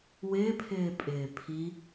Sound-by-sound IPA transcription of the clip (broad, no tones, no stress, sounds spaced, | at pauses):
w ɪː pʰ ɪː pʼ ɪː pʰ i